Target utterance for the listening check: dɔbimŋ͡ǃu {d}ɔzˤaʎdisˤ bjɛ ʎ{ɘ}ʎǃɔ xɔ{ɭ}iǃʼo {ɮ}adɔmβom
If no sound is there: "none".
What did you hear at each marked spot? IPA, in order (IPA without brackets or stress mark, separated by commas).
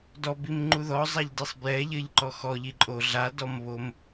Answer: ð, ɘ, ʎ, ɮ